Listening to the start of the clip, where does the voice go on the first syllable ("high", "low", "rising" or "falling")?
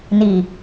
low